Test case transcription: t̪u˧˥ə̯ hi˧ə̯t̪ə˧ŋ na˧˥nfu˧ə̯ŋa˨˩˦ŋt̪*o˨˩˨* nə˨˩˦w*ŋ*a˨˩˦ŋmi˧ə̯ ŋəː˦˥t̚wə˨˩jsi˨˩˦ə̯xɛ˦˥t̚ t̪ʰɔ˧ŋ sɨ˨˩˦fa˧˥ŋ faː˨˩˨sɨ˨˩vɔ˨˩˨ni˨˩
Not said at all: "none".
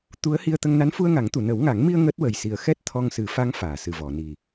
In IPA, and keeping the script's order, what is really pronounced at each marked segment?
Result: u˨˩˨, ŋ

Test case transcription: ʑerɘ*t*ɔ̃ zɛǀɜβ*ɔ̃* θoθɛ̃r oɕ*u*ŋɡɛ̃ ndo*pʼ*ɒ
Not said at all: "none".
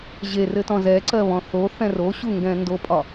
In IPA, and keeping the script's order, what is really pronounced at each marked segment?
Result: t, ɔ̃, u, pʼ

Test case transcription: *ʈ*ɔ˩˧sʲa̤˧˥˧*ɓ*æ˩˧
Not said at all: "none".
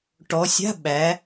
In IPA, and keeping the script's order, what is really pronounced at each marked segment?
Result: ʈ, ɓ

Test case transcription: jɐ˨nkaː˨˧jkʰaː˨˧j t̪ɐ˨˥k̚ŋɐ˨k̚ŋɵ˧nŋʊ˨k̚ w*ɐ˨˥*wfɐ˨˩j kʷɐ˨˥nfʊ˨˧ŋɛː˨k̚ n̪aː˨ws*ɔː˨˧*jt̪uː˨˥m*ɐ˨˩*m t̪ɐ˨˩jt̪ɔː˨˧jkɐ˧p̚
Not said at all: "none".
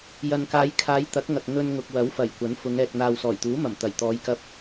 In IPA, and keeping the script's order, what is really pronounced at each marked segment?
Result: ɐ˨˥, ɔː˨˩, ɐ˨˩

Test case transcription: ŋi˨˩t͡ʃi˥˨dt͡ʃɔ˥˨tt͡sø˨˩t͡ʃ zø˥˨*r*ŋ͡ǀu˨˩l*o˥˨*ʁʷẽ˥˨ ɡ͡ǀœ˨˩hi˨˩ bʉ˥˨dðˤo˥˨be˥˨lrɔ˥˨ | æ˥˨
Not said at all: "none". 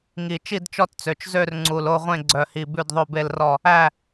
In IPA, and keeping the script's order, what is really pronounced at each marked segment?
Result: r, o˥˨

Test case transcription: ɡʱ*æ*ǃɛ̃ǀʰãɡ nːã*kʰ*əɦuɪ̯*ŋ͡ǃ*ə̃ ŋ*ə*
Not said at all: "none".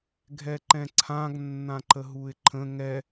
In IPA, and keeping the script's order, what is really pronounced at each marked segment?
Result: ɛ, ǃ, ǃʰ, ɛ

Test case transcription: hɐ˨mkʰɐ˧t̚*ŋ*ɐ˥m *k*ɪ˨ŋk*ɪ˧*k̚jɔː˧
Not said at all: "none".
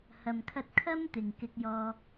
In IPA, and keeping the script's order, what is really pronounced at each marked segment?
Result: kʰ, t̪, ɪ˧

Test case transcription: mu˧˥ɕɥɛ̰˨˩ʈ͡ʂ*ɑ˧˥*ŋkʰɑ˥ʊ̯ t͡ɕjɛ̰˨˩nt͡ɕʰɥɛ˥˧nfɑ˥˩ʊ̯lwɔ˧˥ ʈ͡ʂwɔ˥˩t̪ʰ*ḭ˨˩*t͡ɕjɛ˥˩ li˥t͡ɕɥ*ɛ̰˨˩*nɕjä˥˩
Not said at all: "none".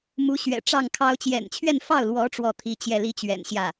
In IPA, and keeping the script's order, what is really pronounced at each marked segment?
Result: ɑ˥˩, i˧˥, ɛ̰˨˩

